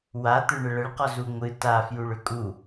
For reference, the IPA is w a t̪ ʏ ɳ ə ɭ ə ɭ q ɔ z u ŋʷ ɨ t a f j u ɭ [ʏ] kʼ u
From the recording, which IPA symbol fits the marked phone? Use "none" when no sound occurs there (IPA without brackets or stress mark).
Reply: ʏ